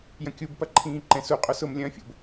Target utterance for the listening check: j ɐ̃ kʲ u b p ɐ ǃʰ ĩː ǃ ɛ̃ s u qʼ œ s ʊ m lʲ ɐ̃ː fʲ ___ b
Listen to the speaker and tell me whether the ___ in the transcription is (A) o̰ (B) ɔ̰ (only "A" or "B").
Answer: A